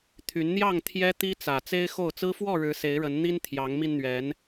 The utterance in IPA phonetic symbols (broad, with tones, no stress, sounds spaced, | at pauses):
t̪ʰ y˨˦ n n̪ j ɑ˥˨ ŋ t̪ʰ j ɛ˦ t̪ i˦ t͡s ä˨˩ t͡s e˦ ɪ̯ x o˥˨ ʊ̯ t͡s ɹ̩˦ f w ɔ˥˨ ɻ ɻ̩˨˦ s e˨˦ ɪ̯ ɻ ə˨˦ n n̪ i˦ n t̪ʰ j ɑ˨˦ ŋ m i˧ n n̪ ɥ ɛ˨˦ n